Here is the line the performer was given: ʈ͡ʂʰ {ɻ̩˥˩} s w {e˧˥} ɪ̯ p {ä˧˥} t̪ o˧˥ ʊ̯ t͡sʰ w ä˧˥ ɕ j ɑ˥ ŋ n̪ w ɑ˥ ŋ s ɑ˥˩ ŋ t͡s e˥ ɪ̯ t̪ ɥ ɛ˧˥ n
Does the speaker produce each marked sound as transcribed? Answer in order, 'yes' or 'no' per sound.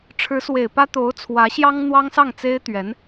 no, no, no

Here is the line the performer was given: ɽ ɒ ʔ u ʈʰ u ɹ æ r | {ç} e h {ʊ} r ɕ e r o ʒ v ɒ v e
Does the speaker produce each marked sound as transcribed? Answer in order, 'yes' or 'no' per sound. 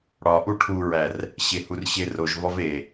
no, no

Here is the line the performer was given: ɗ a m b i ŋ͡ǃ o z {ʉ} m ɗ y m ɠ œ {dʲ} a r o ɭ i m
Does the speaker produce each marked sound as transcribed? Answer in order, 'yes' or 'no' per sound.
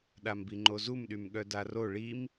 no, no

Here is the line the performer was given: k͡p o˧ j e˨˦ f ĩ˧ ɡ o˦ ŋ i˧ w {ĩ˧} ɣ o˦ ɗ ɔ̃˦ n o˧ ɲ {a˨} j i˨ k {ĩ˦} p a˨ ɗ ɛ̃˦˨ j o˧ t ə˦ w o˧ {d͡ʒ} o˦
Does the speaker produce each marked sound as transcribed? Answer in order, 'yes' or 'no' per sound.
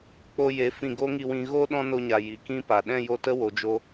yes, yes, yes, yes

